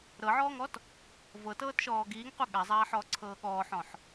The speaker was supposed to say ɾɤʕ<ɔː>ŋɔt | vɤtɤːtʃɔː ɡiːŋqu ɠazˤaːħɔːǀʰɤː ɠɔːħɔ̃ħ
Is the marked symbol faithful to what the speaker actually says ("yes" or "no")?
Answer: yes